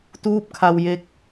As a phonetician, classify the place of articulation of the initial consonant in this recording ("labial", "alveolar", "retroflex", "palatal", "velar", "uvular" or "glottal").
alveolar